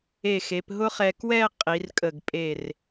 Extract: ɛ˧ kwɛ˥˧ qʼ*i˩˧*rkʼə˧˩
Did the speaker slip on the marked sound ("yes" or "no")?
no